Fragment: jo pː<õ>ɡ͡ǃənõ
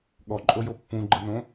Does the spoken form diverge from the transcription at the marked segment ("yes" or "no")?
yes